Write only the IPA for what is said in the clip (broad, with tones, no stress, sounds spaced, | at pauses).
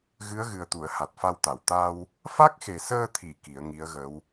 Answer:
ɣ ɨ˧˥ ə̯ ɣ ɨ˨˩ ə̯ t̪ u˨˩˨ ə̯ h a˨˩ t̚ f a˧ w t̪ a˨˩˨ w t̪ a˧ w | f a˦˥ k̚ x e˨˩ s əː˧ t̪ʰ i˨˩˨ k i˨˩˦ ə̯ ŋ i˧˥ ə̯ ɣ ə˧˥ w